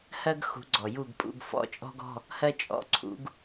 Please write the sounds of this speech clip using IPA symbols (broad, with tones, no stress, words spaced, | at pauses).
hɜ˥ɡ xṳ˨˥ɡ͡ǀɔ˩ju˦˨ɡpʼṵ˧˥˧ɡ fɔ̰˧˥˧t͡ʃʼɔ̤˥ɡɔ̤˧˥˧ | hɜ˥t͡ʃʼɔ̰˧˥˧ǀʰṵ˨˥ɡ